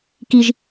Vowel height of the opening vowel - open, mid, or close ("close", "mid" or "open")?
close